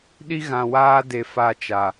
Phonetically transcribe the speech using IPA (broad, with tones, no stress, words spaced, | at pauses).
ɗi˦ɣã˨waː˦de˨ fa˦t͡ʃa˨